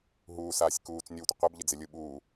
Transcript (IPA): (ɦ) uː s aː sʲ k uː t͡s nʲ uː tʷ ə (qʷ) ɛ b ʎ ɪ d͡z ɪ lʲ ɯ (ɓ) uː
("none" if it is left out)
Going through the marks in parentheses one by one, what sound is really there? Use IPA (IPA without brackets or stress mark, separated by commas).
ɦ, qʷ, ɓ